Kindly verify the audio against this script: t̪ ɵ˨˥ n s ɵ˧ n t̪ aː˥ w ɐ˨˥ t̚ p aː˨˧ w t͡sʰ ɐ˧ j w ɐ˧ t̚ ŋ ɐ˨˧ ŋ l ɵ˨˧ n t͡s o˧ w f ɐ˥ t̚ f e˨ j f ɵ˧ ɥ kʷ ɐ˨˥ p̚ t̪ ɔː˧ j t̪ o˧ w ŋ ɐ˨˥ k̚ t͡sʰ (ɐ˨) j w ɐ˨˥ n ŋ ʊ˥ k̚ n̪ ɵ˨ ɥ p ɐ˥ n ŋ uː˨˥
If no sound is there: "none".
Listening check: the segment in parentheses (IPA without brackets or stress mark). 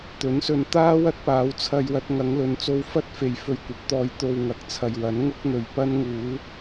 ɐ˨